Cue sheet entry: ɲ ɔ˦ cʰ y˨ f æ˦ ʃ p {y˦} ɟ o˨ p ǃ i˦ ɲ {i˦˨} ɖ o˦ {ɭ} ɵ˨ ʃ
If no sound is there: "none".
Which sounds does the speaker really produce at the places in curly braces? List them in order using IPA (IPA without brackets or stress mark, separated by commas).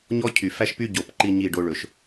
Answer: y˦, i˦˨, ɭ